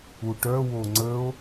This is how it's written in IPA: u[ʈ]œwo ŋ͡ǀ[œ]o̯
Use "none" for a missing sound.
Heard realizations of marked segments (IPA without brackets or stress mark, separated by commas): ʈ, ə